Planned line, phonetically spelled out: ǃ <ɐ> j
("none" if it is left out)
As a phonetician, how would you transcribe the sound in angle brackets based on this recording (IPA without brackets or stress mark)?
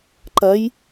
ɐ